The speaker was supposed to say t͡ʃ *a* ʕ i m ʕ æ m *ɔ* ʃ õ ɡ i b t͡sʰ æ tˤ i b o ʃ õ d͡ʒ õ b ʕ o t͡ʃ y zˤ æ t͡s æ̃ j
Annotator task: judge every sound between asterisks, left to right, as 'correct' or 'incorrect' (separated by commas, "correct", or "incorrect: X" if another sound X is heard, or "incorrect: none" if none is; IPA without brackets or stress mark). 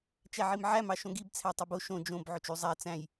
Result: incorrect: æ, incorrect: ɑ